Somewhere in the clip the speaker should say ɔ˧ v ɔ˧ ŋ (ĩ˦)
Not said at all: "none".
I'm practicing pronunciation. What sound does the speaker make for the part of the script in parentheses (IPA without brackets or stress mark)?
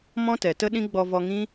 ĩ˦